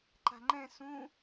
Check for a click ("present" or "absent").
present